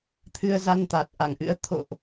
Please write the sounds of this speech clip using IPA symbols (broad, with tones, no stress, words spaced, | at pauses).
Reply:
t̪ʰɨ˧ə̯za˧nt̪aː˨˩t̚ ʔa˧˩ŋʔɨ̰˧˥ə̯ t̪ʰo̰˧˨ʔ